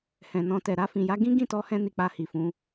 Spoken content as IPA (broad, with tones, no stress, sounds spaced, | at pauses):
h ɛ̃˨ n ɔ̃˧ t ɛ˨ ɾ a˧ f ĩ˨ j a˨˦ ɡ ĩ˦ ɡ ĩ˦˨ t ɔ˨˦ h ɛ̃˧ n i˧ k͡p a˧ h i˨ f ũ˨˦